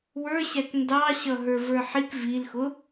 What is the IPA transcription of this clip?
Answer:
w ə˞ ɕ æ k n d ɑ ɕ ʌ ɦ ə˞ v ə˞ ħ i k v i l x ʊ

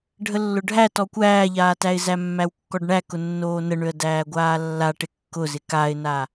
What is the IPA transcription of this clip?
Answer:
ɖʱ ə lː ʊ ɖʱ æ t ɔ kʷ æː ʎ aː t æ ɪ̯ z æ mː æ w kː ɔ ɖ ɳ æ k ʊ nː oː n ə ɳ ø ə̯ d æː ɡʷ aː lː a ʈ ɪ kː ʊ z ɪ k a ɪ̯ n a

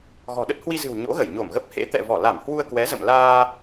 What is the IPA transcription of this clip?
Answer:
ɣ ɔ̤˨˩ ɗ ə˦˥ t̚ h w i˧ z ɨ̤˨˩ w ɲ o̰˧˥ ɣ ə˧˩ j ɲ o˧˩ m ɣ ə˦˥ p̚ h ḛ˧˥ t̪ ɛ̰˧˨ v ɔ˧˩ l a˧˩ m h w u˧ ə̯ k w ɛ˨˦ z ə̰˧˨ m l aː˧

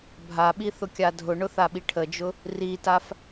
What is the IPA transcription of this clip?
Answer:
bʱ a ɓ i θ ʊ kʲ a dʱ ʊ ɳ ʊ θ a ɓ i ʈʰ ə d͡ʒ ʊ | r i t a f

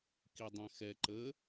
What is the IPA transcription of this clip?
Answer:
k i dˤ ɛ̃ x ɛ ǃ ə

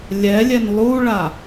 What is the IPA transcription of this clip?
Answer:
lʲ ɛ lʲ ɛ n lˠ u ɭ a

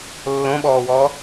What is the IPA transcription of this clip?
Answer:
lː õ ɓ ɔː w ɔː

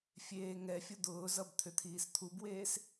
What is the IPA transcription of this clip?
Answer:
fʲ eː ŋ ɛ fʲ ʊ d̪ ʊː z ʌ b t̪ʰ ʏ t̪ʰ iː s t̪ʰ u b w eː s

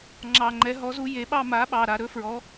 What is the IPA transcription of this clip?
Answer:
ŋ͡ǁ ɑ˨˩ ŋ͡ǃ ɛ˩˥ ɦ ɔ˩˥ z u˩˥ j e˩˥ ɓ ɑ˥˧ m a˩˥ ɓ ɑ˨˩ ɾ a˨˩ ɾ ɵ˦˥ f ɹ ɔ˩˥

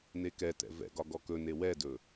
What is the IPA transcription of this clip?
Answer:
n e k ɛ t ɛ̰ v ɛ̰ ɡ ɒ ɡ ɔ k ɵ n e w ɛ d ɵ

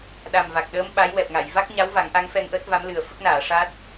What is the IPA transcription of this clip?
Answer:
ɗ a˨˩ m v a˨˩ k̚ ɗ əː˧˥ m ɓ a˧˥ j w ɛ˨˩ p̚ ŋ a˨˩˨ j v a˦˥ k̚ ɲ a˧˥ w v a˨˩˦ ŋ ʔ a˧˥ ŋ f ɛ˧ ŋ ʔ əː˦˥ t̚ v a˧˥ m l ɨ˨˩ ə̯ f ə˦˥ k̚ n aː˨˩˨ ʂ a˦˥ t̚

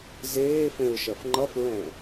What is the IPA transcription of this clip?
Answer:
z eː f ẽ ɹ ʃ ɜ f ŋ͡ǃ ʌ f ɹ ɛ̃

